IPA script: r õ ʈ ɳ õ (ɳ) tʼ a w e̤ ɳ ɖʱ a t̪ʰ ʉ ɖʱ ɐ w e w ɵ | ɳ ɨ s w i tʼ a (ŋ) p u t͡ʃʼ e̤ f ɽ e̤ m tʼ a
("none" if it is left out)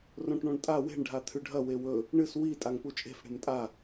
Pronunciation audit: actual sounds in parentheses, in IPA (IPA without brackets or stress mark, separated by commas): ɳ, ŋ